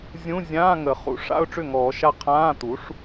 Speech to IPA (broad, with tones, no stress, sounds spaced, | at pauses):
zʲ ũ˧˥˧ zʲ ãː˧˥˧ ŋ ə˨˩˦ χ ṵ˩˥ ʂ a̰˧˥˧ ʊ̯ ʈ͡ʂ ʏ˥˩ ŋ ɔː˨˩˦ ʃ a˥˩ qʰ ãː˧˥˧ t̪ u˩˥ ʂ